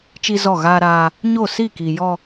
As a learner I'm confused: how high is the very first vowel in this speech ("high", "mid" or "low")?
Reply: high